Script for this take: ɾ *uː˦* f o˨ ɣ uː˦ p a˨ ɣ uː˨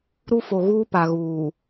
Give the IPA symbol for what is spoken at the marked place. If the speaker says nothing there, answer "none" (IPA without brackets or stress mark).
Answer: u˦